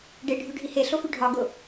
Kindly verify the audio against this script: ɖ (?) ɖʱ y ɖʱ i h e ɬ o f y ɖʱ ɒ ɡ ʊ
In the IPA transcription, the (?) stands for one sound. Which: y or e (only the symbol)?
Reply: e